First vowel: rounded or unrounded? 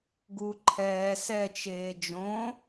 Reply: rounded